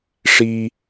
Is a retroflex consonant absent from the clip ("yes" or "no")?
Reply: no